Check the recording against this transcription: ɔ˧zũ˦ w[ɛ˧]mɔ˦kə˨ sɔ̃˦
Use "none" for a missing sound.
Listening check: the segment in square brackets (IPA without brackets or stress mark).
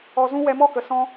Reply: ɛ˧